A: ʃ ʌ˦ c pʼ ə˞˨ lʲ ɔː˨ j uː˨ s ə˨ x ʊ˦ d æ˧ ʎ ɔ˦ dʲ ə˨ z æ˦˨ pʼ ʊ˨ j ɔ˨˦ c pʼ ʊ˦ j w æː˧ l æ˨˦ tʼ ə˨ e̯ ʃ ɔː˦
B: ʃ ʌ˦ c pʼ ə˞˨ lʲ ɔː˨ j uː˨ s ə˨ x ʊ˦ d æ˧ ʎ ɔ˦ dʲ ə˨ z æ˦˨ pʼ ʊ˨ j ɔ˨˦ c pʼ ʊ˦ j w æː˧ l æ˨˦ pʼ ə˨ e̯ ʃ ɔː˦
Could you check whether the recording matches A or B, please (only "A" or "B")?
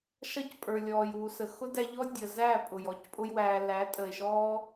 A